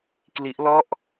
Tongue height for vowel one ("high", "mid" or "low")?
high